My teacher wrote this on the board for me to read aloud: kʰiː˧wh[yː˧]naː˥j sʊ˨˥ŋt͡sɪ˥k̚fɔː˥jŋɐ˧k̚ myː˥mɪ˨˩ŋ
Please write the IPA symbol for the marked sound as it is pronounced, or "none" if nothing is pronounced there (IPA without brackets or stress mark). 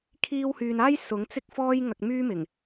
yː˨